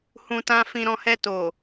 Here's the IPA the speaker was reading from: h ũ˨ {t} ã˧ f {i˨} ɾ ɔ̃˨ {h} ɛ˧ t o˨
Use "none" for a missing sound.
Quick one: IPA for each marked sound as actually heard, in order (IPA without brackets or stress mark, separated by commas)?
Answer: t, ĩ˨, h